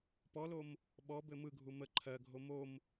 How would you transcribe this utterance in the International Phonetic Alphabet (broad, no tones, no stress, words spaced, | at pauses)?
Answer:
pɔlom | ɓɔbɘ mɯɡʱu mə ǃʰɜɡʱo mom